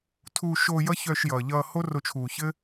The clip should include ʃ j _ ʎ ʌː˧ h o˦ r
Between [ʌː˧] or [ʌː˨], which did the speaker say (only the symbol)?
ʌː˨